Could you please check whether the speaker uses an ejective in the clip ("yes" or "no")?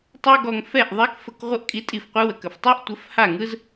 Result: yes